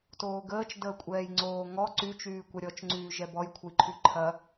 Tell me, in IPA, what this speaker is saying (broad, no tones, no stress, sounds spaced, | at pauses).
t oː ɡ əː t͡ʃ d əː kʷʼ ɛː j ŋ͡ǀ oː ŋ ɔ ǀ y t͡ʃ yː kʷ ɐ ɾʲ ɔ t͡ʃ ŋ͡ǀ yː ʒ ɛ b ɔ j kʷʰ ə j ǃʰ y ǃʰ ɐ